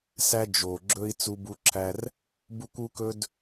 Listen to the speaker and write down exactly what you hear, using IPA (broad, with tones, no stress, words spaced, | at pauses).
sæ˦d͡ʒo˨ɡ͡ǁɵ˦i̯ t͡su˧bu˧ǁʰæ˧r | bu˦kʷu˦kɵ˦d